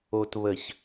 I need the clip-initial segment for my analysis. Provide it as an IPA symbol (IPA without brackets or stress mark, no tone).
o